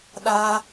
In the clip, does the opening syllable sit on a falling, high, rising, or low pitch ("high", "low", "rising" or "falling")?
high